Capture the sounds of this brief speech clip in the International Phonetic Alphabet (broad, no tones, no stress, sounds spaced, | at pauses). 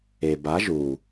e b a ʒ u